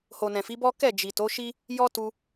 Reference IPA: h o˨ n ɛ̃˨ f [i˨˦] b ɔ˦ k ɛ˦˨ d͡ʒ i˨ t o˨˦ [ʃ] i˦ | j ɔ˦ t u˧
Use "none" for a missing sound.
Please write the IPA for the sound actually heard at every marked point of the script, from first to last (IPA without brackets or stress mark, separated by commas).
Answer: i˨˦, ʃ